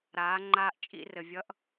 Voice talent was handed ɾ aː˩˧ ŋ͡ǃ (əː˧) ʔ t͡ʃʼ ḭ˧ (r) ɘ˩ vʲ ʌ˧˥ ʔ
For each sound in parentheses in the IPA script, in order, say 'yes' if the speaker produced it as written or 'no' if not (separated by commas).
no, yes